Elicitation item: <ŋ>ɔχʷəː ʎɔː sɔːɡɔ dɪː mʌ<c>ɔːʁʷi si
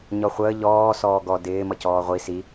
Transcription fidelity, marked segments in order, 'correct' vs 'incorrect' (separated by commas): incorrect, correct